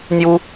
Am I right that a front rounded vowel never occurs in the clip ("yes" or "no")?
yes